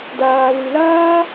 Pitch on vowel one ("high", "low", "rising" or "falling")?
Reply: low